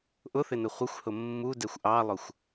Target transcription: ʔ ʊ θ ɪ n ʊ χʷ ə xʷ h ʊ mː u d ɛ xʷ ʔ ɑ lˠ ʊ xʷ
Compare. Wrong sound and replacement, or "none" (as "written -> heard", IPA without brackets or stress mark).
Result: none